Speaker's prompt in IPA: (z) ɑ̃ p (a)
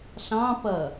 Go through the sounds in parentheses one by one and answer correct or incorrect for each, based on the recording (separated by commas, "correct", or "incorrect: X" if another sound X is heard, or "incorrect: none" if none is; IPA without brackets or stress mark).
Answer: incorrect: ɬ, incorrect: ʌ